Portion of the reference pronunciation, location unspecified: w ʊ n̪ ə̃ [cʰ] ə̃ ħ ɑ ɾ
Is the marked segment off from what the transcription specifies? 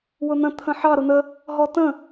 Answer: yes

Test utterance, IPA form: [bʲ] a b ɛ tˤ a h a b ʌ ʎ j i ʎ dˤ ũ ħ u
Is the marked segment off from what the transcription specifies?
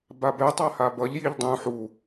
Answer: yes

